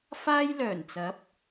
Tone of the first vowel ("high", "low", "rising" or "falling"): high